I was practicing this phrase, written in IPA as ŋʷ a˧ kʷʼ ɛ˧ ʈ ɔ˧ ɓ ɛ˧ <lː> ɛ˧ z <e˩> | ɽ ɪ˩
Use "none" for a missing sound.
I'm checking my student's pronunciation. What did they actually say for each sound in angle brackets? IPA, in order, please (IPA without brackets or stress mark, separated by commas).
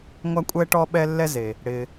lː, e˩